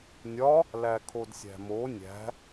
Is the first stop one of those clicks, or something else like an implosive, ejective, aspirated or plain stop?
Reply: aspirated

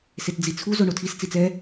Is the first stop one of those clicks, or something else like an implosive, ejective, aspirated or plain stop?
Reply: plain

